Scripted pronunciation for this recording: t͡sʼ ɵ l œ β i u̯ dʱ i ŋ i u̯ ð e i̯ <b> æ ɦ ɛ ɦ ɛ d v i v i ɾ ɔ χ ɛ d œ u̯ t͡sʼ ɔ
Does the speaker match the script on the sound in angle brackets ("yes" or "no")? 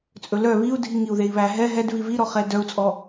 no